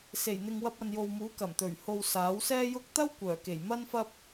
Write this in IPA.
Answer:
s e˨˩ j n̪ ɪ˨ ŋ w ɐ˧ p̚ ɐ˨ n j o˨ w m uː˨˥ k ɐ˨˩ m t̪ ɵ˨˩ ɥ h o˨ w s aː˨˥ w s ɛː˥ j ʊ˥ k̚ t̪ ɐ˥ w kʷ œː˨˩ k e˨˩ j m ɐ˥ n f ɐ˥ p̚

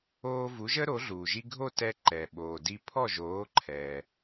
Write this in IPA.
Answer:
oː˧ v u˩˥ ʒ ə˥ ɾ o˩˥ ɮ uː˩ ʒ i˧ ɡʱ o˥˩ t ɛ˧ ǃ ɛ˩ ɓ oː˩ d i˧ pʰ ɔ˥˩ ʒ oː˩˥ ǃʰ ɛː˩

